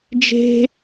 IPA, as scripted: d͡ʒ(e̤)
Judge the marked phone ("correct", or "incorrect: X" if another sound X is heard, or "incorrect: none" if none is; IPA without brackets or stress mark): correct